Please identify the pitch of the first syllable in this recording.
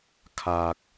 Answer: low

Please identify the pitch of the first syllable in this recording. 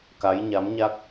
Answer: rising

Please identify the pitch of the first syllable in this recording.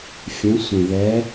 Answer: rising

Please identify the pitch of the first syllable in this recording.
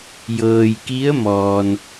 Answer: low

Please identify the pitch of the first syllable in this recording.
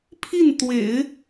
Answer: falling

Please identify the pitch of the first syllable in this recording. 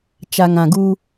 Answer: low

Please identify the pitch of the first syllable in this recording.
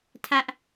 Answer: high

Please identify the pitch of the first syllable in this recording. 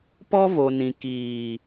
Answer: high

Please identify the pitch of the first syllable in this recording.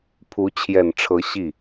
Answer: rising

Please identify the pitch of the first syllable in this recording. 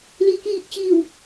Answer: low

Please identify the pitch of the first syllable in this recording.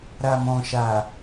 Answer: low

